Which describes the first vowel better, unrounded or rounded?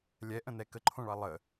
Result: unrounded